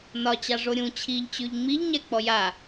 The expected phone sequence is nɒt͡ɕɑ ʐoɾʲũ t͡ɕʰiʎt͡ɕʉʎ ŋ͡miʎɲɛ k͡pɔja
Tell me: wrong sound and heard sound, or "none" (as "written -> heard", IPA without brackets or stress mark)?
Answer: none